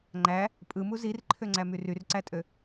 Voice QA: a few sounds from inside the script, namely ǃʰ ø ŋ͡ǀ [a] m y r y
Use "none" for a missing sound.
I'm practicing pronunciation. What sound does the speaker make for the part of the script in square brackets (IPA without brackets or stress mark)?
æ